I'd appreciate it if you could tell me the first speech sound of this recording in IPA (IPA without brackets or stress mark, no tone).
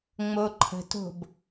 ŋ͡m